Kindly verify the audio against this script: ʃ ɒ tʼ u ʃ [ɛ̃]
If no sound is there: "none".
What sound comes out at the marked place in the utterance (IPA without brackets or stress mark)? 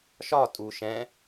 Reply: ɛ̃